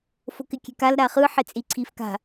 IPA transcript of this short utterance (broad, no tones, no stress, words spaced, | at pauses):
fokɪkʲe̤kal ɾaχɯ ħet͡sʼiǀʰifka̤